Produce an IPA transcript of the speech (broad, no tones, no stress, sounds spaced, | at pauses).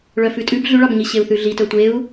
ɭ œ f ʉ tʼ ʉ b ɮ ʉ ɭ ɑ b ɲ i ɕ e u̯ θ ʉ ɮ i t œ tʷ e u̯